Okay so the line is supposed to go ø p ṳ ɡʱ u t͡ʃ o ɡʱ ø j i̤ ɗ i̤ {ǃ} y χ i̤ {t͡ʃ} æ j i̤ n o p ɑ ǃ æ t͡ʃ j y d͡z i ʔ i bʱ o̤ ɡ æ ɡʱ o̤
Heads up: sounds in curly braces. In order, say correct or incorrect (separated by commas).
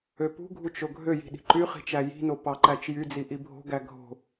correct, correct